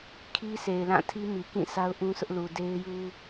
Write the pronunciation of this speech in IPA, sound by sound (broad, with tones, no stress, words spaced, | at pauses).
kʰi˦se˨ɪ̯lã˦˨tʰi˦ mi˨kĩ˦˨ sa˦ʊ̯ʔũ˦sʰʊ˦ʔlu˨ de˦ɪ̯ju˦